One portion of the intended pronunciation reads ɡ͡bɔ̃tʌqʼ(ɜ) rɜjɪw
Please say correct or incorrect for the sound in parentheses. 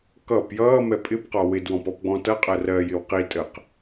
correct